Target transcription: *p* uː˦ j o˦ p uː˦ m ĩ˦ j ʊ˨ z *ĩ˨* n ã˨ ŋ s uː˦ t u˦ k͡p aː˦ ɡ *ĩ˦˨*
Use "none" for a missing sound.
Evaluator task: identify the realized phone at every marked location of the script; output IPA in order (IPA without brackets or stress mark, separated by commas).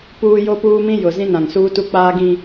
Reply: p, ĩ˦, ĩ˦